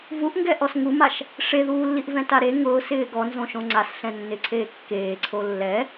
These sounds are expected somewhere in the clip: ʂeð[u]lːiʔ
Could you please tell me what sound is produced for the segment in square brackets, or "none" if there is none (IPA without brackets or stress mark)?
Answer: uː